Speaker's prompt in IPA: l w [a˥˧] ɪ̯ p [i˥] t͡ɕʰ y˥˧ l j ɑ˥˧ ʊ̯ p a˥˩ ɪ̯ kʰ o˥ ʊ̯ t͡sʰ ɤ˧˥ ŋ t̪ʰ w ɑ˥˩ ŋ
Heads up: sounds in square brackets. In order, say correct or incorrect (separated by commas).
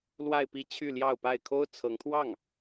correct, incorrect